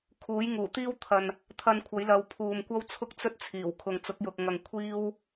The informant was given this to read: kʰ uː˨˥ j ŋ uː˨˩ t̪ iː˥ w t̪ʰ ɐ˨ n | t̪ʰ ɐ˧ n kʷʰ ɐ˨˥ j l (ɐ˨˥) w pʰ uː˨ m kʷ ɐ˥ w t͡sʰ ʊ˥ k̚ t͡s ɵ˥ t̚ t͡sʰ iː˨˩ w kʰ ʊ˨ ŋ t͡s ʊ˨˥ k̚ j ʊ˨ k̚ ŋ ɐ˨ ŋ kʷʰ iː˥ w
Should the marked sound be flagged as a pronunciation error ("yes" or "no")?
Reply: yes